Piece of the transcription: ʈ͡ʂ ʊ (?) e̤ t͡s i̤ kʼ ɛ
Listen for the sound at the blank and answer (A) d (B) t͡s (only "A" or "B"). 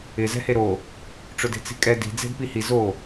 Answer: A